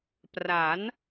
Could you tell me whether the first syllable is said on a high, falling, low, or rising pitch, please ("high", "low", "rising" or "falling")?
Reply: rising